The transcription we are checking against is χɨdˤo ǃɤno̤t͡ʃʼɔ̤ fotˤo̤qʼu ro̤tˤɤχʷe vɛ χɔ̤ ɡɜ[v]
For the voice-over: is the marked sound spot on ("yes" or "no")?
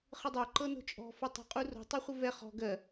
no